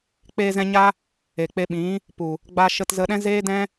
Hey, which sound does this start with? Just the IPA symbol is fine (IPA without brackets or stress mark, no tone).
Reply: k͡p